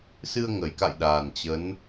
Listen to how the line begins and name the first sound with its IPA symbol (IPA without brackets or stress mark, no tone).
s